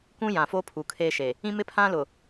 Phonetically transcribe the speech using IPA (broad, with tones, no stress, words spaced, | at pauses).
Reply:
kũ˦jã˨fo˦ pʰu˨kʰeː˦ʃe˨ | ĩ˦mɪ˦pʰã˦lʊ˨